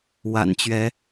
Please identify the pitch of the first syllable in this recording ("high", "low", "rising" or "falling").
low